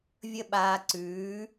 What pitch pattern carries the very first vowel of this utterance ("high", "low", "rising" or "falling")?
high